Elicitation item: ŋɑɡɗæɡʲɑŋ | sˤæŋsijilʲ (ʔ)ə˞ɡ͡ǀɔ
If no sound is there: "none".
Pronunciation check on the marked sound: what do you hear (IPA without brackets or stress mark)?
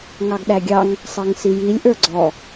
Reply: ʔ